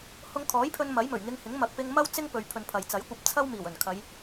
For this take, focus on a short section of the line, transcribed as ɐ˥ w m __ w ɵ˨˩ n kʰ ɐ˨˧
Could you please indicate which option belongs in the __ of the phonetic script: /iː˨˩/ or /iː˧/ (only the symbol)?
iː˨˩